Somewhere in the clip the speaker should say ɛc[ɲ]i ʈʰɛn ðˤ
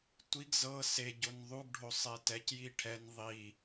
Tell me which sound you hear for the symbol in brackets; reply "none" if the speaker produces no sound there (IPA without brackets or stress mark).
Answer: j